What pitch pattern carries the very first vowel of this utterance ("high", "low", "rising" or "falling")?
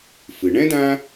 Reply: low